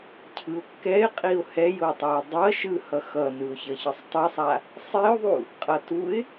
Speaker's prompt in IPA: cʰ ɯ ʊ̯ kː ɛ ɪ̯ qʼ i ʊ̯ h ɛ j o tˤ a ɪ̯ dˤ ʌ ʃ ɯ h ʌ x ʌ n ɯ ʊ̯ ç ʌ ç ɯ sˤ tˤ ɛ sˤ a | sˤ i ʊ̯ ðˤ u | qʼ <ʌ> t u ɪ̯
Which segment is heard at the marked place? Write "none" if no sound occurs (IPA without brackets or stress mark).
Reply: ʌ